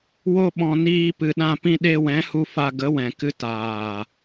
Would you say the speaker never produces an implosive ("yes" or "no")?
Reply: no